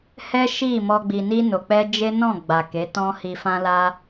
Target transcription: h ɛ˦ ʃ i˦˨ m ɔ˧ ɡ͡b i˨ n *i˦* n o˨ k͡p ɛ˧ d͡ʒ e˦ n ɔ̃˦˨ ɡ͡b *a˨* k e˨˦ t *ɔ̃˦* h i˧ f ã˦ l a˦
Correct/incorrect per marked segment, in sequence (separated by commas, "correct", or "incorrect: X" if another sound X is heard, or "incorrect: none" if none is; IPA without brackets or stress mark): incorrect: i˧, correct, correct